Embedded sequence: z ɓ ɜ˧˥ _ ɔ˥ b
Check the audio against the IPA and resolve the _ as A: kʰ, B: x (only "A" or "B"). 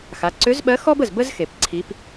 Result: B